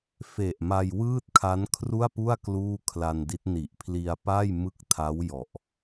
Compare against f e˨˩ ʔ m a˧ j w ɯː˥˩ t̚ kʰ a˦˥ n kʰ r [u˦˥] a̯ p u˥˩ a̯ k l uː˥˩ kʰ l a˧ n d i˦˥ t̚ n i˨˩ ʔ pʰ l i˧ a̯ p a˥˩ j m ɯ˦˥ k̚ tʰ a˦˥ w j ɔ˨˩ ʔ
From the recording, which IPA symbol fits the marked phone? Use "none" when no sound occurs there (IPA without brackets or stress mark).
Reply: u˥˩